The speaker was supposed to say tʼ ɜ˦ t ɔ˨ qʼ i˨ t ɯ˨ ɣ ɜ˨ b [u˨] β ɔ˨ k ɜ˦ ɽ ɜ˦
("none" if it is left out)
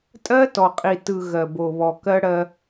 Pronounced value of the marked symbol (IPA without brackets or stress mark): o˨